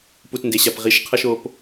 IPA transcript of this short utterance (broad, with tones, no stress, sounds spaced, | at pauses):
p u˨ t n d e˨ ɕ a˨ p ʁ i˨˦ ʃ qʰ ʌ˧ ʃ o˨ p